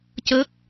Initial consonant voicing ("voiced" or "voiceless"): voiceless